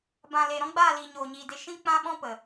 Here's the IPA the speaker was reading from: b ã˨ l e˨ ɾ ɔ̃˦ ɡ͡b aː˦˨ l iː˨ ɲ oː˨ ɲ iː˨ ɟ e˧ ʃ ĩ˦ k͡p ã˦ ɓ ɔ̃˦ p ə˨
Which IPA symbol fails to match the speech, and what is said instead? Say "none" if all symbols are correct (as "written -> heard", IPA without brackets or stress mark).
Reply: ɟ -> d